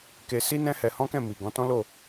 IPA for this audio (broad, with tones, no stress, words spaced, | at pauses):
ke˧si˦ nɛ̃˦hɛ˧hɔ̃˦kɛ̃˦˨ mi˨ɡɔ̃˨˦tɔ̃˦ lo˦˨